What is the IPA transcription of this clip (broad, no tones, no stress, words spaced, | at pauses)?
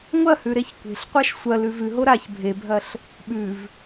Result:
ŋʷɐhʉ ɾeçkʷe̤ɬqʷaʃ sʷɐ lʉvʉɦo ɾaç bʱebʱɐɬ | ɓʉv